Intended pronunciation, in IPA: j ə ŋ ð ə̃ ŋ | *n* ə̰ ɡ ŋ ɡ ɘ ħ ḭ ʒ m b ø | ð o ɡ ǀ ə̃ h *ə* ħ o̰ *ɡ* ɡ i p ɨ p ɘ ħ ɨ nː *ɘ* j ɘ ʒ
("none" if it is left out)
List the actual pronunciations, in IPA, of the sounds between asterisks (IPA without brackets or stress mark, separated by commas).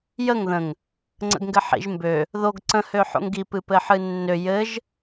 ŋ͡ǀ, ø, ŋ, ø